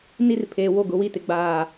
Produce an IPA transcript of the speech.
n i˦ r pʰ eː˨ w o˦˨ ɡ ʊ˨˦ w i˦ t ɪ˨ ɡ͡b aː˦˨

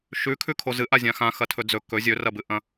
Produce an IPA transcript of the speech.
ʃ ʉ kʰ ʉ kʰ o z ɨ ʔ a zʲ ã x ã x ɐ tʰ ɵ d͡z ɵ k ɵ zʲ ɵ r ɐ b ɨ ʔ ɐ̃

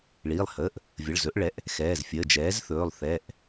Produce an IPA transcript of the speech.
ɭ iː˩˧˩ lˠ h əː˩˧˩ ʔ | vʲ ə˩˧˩ ɭ z ɵ˩˥ ʔ ɭ ɛ˩˥ ʔ | x ɛː˩˧˩ z fʲ əː˩˧˩ d͡ʒ ɛː˩˥ z θ ɵː˩˧˩ lˠ θ ɛ˩˧˩ ʔ

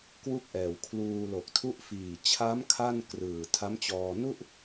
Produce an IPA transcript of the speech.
k w u˥˩ k̚ ʔ ɛː˨˩ w kʰ l uː˧ l o˨˩ k̚ tʰ u˦˥ ʔ f iː˨˩ t͡ɕʰ a˦˥ m kʰ a˥˩ n k r ɯː˨˩ tʰ a˦˥ m t͡ɕ ɔː˧ n u˥˩ ʔ

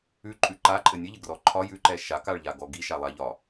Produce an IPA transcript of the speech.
ʉ ǃʼ ʉ ǃ a ǃʼ ɘ nʲ ɘ ʎ ɘ ɡ r ɔ ǃʰ ɒ j ʉ ǃ ɛ ʃ a k a ɭ ʎ a ɡ ɔ ɡ i ʃ a lˠ a ʎ ɒ

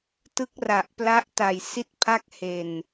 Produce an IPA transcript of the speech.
t ɯ˦˥ k̚ r a˨˩ ʔ p l a˦˥ ʔ t a˨˩ j s i˥˩ t̚ pʰ a˥˩ k̚ h e˨˩ n

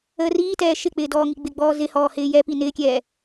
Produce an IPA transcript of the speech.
əː r iː t ɛː ʃ ɪ k͡p ɪː d ɔː ŋ i ɡ͡b ɪ ɡ͡b ɔː z ɪ h ɔː h ɪː j ɛ p i n ɪː kʲ ɛː

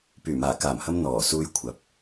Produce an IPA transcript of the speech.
p yː˨˩ m aː˨˩ k aː˨˩ m h ɐ˧ m n̪ ɔː˨˩ s uː˧ j kʷʰ ɐ˨˥ p̚

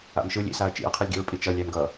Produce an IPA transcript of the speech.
a̰ m ʃ ɯ lʲ ḭ s a ɐ̯ t͡ʃ ḭ ɐ̯ qʰ ɯ lʲ ɡ ḭ ɹ pʼ i t͡ʃ ʌ lʲ æ m ɡ ʌ

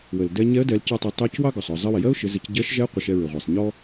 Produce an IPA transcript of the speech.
w ə˩ l d ɛ˧ ɲ ɛ˧˥ ə̯ d ɛ˩˧ l c ɑ˧ tˤ ɛ˩˧ tˤ ɜ˧˥ c w ɑ˥ ɡ ɔ˩ sˤ ɔ˩ zˤ ɜ˧ w ɪ˩ j ɜ˥ ʊ̯ ʃ ɪ˩˧ z ɪ˩˧ c ɟ ɜ˧˥ ʃ ʒ ɛ˧˥ qʷ ɪ˩˧ ʃ ɛ˧ ɹ ɪ˩ ʁʷ ɛ˩ sˤ ɲ ɔ˥

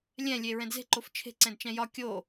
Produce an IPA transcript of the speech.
lʲ ɛ̃ lʲ e ɹ ɛ̃ d z e̤ ǃ o f t͡ʃʰ e̤ ǀ ɛ̃ d t͡ʃ ɛ̃ j ɒ kʲ o

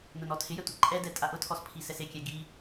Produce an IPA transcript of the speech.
n ʊ n ɔ tʰ ɪ j ɛ tʷ ɪ ǃʼ ɛ d ɛ tʼ a ʔ ʊ tʰ ɔ s pʰ i s ɛ s e kʲ ɛ ɡ i

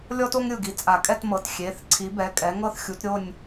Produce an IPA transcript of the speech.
lʲ ɔ˥ t o˥ ŋ ɾʲ ɯ˧˩ ɡ i˨˥ t͡sʼ a˨˩˦ kʼ ɛ˥˧ t m ɤ˩˧˩ t xʲ e˩˧˩ θ ǀʰ i˨˥ b ɛ˩˧˩ kʼ ɛ˨˥ ŋ ɤ˥˧ θ xʲ u˨˥ t ɾʲ o˥˧ nʲ

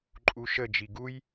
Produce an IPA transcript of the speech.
ǃʼ u ʃ ə d͡ʒ i ɡ u j

